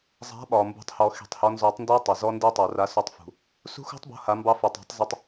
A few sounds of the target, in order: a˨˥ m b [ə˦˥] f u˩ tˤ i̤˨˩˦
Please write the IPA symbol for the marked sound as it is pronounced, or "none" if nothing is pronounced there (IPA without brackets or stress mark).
ɑ˦˥